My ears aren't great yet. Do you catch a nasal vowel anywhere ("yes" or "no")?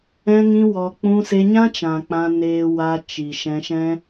yes